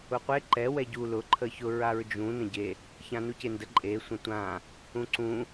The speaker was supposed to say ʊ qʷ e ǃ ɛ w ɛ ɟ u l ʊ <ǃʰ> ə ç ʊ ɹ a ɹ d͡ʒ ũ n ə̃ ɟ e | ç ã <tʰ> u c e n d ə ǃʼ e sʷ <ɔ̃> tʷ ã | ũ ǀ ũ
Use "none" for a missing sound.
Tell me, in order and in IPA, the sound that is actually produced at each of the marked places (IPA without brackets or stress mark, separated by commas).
ǃʰ, n, ə̃